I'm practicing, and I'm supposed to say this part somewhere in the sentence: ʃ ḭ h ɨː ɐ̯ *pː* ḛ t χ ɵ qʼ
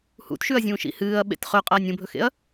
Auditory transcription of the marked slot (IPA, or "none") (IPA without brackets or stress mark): ɓ